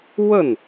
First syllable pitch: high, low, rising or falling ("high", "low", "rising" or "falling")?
falling